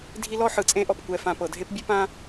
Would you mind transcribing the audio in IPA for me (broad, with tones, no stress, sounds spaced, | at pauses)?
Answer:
dʱ i˦ l ɔ˥ ħ ɯ˩ t͡sʼ ẽ˦ ʔ ɔ˩ p kʷ ɛ˨ f ã˨ p ɤ˩ dʱ e˥ p bʲ ɯ˥ p ã˥